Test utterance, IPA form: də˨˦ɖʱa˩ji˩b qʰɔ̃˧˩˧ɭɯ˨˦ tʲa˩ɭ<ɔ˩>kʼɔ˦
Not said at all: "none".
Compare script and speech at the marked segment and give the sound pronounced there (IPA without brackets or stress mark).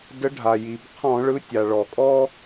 ɔ˩